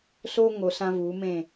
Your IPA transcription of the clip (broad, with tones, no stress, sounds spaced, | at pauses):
s o˧ ŋ o˧ s ã˦ v u˨˦ m ẽ˦˨